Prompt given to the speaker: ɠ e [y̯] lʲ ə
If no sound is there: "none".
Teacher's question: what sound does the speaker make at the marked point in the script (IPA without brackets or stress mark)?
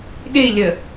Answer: i̯